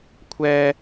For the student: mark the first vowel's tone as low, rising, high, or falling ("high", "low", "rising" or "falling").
high